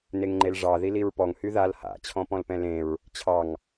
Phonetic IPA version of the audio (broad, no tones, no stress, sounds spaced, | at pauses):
n e ŋ ŋ͡ǃ e l ʐ ɑ ð i l i ɹ p ɔ ŋ h y ð a l h a̰ t͡ɕʰ ɔ̃ p ɔ̃ l p ɛ̃ l ẽ ɹ | t͡ɕʰ ɑ ŋ